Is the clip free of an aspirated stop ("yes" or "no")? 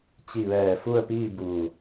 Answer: yes